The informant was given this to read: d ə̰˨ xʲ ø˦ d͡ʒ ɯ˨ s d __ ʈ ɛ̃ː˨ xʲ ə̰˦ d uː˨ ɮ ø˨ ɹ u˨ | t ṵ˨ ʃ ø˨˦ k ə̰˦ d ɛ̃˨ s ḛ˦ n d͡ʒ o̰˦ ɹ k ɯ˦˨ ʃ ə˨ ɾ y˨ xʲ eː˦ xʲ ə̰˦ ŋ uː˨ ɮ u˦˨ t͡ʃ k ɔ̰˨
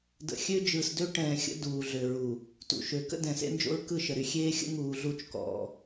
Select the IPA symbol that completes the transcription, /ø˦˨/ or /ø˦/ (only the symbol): ø˦